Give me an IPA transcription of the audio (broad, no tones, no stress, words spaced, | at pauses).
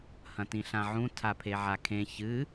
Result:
hɐ̃tĩɬãʕũ tʰapʰeʕakʰẽ çɨ